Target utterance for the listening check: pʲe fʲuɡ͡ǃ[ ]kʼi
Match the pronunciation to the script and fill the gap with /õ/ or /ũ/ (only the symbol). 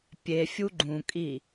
ũ